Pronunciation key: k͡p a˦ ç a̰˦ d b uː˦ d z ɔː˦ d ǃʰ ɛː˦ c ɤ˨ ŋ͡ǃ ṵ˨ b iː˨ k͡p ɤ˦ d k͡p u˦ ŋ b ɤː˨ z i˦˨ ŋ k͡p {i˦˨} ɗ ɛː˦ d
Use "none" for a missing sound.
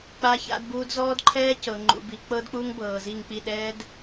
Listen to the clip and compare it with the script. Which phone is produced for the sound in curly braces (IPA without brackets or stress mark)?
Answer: i˦˨